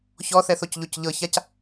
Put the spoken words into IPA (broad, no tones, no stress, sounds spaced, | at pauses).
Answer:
ç ɔ θ ɛ θ o c ʎ o c ʎ ɤ ç a c